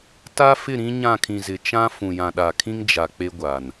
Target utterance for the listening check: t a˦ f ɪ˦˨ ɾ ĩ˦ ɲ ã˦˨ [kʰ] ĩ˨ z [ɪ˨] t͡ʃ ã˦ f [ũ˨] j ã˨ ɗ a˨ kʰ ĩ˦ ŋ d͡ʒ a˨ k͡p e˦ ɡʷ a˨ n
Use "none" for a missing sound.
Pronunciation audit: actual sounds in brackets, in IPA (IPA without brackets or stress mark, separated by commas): kʰ, ɪ˨, ũ˨